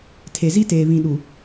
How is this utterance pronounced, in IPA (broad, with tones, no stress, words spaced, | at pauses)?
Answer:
tʰe˨zi˦teː˨ βĩ˨ɗu˨